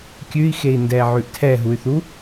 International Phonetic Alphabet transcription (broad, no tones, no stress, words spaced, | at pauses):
kʲʉi̯xei̯ndɛ ʕʉʔtʰɛɦuy̯θu